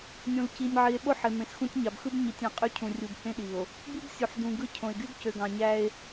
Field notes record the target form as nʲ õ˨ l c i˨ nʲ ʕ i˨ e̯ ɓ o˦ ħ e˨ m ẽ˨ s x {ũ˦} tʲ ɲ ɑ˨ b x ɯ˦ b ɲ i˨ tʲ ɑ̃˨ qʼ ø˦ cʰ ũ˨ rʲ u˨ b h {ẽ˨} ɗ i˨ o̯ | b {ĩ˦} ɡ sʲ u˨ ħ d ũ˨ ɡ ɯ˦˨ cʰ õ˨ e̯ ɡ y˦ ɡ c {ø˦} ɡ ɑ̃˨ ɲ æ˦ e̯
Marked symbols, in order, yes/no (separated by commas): yes, no, no, no